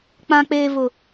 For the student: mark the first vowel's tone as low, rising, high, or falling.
low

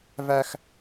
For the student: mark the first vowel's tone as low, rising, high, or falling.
high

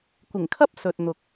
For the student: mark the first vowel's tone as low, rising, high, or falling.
low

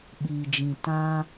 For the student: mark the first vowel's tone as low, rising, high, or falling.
low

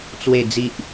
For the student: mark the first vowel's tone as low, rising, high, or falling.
low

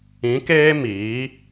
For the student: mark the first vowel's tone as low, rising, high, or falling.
rising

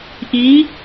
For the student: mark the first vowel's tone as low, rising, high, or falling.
rising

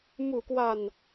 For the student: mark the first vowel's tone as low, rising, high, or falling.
low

